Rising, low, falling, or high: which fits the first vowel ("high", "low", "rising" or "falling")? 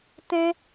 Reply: high